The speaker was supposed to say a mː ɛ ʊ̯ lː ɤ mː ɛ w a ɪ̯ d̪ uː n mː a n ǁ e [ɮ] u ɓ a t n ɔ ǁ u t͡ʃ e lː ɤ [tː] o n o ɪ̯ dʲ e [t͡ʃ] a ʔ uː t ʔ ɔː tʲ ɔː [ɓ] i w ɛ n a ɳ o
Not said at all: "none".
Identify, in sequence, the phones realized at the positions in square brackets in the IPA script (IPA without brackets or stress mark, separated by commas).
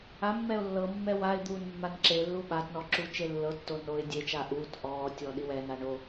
lː, tː, t͡ʃ, ɗ